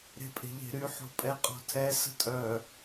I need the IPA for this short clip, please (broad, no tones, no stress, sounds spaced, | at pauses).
ɾ e̤ pʼ e̤ ʎ e̤ ɾ y ħ o̤ pʼ ɛ qʼ ɔ̤ tʰ ɛ s ə̤ tʼ œ